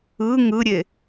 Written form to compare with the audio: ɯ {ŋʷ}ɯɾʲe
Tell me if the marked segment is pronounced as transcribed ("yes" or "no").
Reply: no